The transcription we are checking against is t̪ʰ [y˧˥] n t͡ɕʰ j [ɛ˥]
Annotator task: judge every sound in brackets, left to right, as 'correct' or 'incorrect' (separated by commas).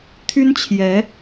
incorrect, incorrect